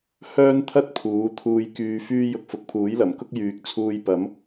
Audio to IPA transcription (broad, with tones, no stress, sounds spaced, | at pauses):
h œː˥ n t̪ʰ ɐ˥ t̚ pʰ uː˨˧ t̪ʰ uː˧ j k yː˧ f yː˥ j ʊ˧ k̚ f ʊ˨ k̚ pʰ uː˨˥ j l ɐ˨˩ m k ʊ˥ k̚ j yː˨ k̚ t͡sʰ uː˧ j p ɐ˨˥ m